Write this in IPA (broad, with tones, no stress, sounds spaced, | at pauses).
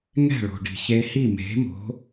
ŋ ɛ̤˥˩ ɭ o̤˩ ɖ i̤˩ ç e˧ h i˥˩ m e̤˩˥ m o̤˩˥